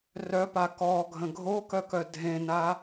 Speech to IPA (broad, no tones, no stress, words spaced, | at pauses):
rœpa kɔɡʱə̃ ɡʱokœkœ dʱẽna